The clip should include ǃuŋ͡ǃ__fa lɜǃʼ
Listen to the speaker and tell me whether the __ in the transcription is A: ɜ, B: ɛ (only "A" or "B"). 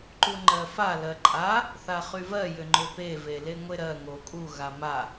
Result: A